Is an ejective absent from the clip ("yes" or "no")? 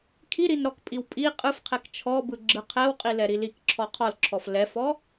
no